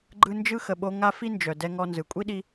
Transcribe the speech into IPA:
ɡ͡ǃ ɯ˧ n d͡ʒ ɯ˥ x ə˩ ɓ o˧ ŋ a˥ f i˥ n d͡ʒ œ˩ d ɛ˧ ŋ ɔ˧ n z ɯ˩ kʷʼ i˥ ɗ i˧

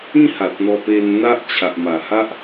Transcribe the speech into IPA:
ĩ˥˧ h a˨ t̚ n̪ ɔ˧ p e˧ n n̪ a˦ ʔ t͡ɕʰ a˨ ʔ m a˨˩ h a˦ ʔ

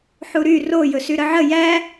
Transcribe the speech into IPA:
ħ u ɾ y r o j ɵ s y ɾ ə ʕ ə j æ

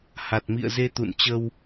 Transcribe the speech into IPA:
h a˨˩ t̚ m ḭ˧˨ ə̯ z e˧ t̪ ṵ˧˨ n t͡ɕ ə˧ w

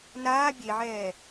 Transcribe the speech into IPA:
n aː bʲ e ʕ ɛː

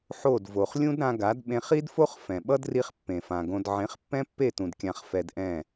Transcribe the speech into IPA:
ħ o˦˨ d v o˨ χ lʲ ũ˦ d ɾ ã˧ ɡ a˨˦ d ɓ ẽ˧ χ i˦ d f o˦ χ f ɛ̃˨ ɓ ʌ˦ d r i˦ χ pː ẽ˨ f ã˨ ɡ õ˧ d ʕ ẽ˨˦ χ pː ɛ̃˦ pː e˦˨ t ũ˨ d kʲ ã˧ χ f ɛ˧ d ʔ ɛ̃˦˨

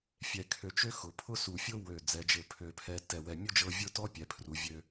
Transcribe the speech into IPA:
fʲ ɛ˧ kʰ ø˧ t͡ʃ ø˥ x ʊ˩˧ pʰ ʊ˥ s u˧˩ fʲ ʊ˥ w ø˧˩ d͡z ɛ˩˧ d͡ʒ ɘ˧˩ pʰ ø˧˩ pʰ ɛ˧ t ɛ˧˩ w ɛ˧˩ mʲ ʊ˥˧ d͡ʒ ɤ˧ vʲ ʊ˥˧ t ɔ˥ pʲ ɛ˩˧ pʰ r u˩˧ vʲ ø˧

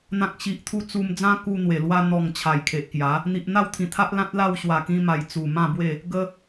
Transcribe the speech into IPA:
n̪ ã˨ k̚ ɕ i˨ ʔ t̪ʰ u˧ t͡s u˧ m d͡z ã˦ k u˧ n̪ w e˨˩ l w a˧ n̪ ɔ˨˩ ŋ t͡ɕʰ a˨˩ j kʰ e˨ ʔ k j a˨˦ | n̪ i˨ ʔ n̪ a˥˧ w t̪ʰ ĩ˨˩ t̪ʰ a˦ ʔ l ã˦ t̚ l a˥˧ w ɕ w a˨˩ k ĩ˧ m a˨˩ j t͡s u˨˩ m ã˥˧ b w e˥˧ | ɡ ə˧

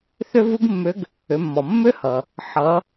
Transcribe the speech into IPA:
θ ʏ˥ v u˥ ɡ mː ʏ˧˥ ɡ | ʏ˩˧ mː ɔ˩ mː ʏ˥ h ʌ˩ | ħ ʌ˩˧

